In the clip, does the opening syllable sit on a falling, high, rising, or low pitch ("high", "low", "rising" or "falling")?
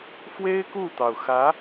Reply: high